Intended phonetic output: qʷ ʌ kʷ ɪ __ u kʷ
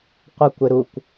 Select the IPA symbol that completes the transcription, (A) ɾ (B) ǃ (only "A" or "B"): A